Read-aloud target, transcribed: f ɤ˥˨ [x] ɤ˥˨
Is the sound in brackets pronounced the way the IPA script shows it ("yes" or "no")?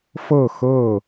yes